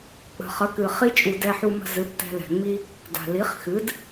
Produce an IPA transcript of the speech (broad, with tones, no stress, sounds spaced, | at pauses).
k͡p ə̤˩ χ ə˩˥ k ɨ˩ χ i˥ t͡ʃʼ u˩ d ɛ˧ ħ u˧ m ə̤˧ z ɨ˩˥ p t ɛ̤˧ l ɛ̤˩ ŋ͡m i˥ | d a̤˩ l i˩˥ χ x ɨ˩˥ d